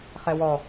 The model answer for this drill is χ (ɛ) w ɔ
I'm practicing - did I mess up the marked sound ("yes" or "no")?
no